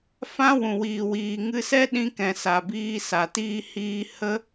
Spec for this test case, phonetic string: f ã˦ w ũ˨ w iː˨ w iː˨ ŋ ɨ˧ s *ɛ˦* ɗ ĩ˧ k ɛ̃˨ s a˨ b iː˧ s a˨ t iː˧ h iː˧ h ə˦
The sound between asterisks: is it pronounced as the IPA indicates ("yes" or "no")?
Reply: yes